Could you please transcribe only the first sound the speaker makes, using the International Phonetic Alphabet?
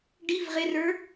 ɖ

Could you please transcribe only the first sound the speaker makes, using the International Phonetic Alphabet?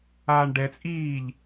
aː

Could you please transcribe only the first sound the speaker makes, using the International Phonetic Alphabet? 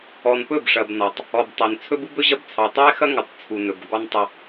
ɔ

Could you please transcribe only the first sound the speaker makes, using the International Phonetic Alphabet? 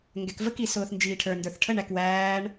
ŋ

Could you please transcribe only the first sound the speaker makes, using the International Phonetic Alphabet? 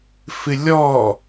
f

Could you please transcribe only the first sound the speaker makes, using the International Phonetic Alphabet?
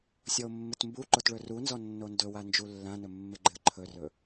sʲ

